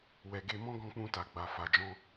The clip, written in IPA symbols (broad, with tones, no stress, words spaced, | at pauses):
wɛ˨ɡe˧mɔ̃˦ ɡɔ̃˧k͡pũ˧ta˨ɡ͡ba˨ fa˨d͡ʒɔ̃˧